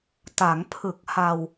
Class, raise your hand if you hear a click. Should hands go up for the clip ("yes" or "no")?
no